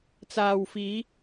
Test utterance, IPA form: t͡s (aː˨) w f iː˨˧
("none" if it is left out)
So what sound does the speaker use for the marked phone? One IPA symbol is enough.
aː˨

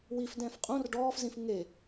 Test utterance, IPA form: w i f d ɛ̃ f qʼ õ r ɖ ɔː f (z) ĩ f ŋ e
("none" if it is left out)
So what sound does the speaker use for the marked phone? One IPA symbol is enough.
z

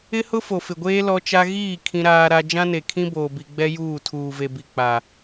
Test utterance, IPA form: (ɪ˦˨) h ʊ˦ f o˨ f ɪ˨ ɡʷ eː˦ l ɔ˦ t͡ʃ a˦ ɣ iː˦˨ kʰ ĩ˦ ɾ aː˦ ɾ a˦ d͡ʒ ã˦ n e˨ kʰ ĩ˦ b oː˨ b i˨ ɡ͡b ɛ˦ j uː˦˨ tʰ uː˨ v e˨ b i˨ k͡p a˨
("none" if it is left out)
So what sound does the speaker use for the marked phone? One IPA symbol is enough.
ɪ˦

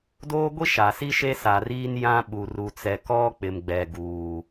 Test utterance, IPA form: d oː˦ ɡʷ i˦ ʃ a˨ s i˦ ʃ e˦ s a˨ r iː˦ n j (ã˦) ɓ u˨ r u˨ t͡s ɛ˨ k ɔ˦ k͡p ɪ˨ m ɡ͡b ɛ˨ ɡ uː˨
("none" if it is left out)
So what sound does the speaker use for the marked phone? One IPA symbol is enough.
ã˦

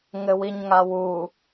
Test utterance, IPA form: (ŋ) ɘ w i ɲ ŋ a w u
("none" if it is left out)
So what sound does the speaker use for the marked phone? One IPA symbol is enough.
ŋ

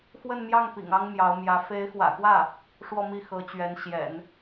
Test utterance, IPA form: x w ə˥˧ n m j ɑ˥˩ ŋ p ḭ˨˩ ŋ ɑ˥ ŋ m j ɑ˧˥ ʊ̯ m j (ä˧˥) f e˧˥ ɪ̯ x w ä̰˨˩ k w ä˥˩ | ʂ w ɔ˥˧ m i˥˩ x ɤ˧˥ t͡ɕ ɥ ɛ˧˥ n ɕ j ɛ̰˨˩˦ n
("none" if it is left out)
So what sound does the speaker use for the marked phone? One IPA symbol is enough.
ä˧˥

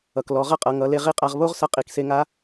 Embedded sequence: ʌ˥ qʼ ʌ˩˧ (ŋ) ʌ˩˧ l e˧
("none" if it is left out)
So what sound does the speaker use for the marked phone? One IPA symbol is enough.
ŋ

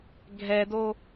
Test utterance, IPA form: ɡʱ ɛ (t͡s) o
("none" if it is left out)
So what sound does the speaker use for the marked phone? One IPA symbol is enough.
d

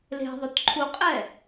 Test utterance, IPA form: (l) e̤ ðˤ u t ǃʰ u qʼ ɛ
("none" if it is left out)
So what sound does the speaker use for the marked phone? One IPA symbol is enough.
l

